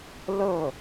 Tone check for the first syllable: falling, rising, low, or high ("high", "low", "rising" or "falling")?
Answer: falling